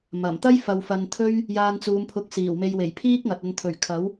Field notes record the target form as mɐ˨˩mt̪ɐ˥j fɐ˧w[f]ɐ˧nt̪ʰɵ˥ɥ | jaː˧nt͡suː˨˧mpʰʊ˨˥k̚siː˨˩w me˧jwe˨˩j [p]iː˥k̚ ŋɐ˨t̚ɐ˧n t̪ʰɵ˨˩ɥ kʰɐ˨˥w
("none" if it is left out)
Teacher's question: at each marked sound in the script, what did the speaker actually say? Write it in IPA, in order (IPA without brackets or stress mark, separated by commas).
f, pʰ